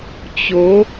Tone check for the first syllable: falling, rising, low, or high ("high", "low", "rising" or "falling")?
rising